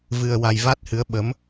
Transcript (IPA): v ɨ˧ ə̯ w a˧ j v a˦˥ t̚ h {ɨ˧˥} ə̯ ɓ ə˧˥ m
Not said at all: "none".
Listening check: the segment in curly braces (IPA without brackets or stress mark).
ɨ˧˥